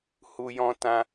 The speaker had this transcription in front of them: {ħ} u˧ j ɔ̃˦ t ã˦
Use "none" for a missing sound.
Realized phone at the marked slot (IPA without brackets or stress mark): h